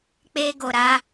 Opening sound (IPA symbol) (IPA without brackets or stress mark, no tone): k͡p